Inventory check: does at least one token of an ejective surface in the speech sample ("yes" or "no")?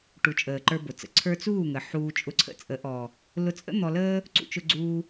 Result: yes